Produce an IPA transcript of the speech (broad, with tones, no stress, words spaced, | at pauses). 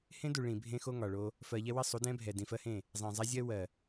hẽ˦du˨ ɭĩ˨bʱẽ˦ xo˦ŋɒ˨ɭo˦ | fɜ˨ʎɛ˦wɘ˦ sˤu˨˦dɛ̃˦ bʱɛ˨dĩ˨fɜ˦hẽ˦˨ | zˤẽ˨zˤa˦zʲɜ˦ wɜ˨